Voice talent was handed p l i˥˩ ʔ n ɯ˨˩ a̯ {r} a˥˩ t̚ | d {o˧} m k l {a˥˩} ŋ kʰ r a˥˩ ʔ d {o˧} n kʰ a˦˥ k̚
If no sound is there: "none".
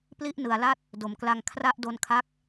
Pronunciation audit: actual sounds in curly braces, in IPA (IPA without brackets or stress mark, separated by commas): l, o˩˦, a˧, o˧